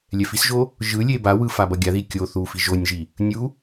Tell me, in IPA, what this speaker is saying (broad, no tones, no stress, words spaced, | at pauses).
lʲɛfisʒo | ʒɯ lʲebawɯ fabʌɡʲaði kʲo θu fiʒonʲʒi | nʲu